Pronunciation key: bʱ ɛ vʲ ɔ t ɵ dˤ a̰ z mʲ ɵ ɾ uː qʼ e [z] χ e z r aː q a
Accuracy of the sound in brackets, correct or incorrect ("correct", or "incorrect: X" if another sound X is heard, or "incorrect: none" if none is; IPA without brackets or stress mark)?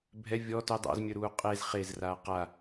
correct